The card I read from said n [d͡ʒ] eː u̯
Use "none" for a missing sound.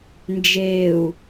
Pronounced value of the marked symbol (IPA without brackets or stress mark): d͡ʒ